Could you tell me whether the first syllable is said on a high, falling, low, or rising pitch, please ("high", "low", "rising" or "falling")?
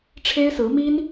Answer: high